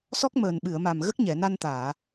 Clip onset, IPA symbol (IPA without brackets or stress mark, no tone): s